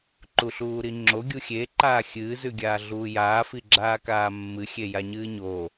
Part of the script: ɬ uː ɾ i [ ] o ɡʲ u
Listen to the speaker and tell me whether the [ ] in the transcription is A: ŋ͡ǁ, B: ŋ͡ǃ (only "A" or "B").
A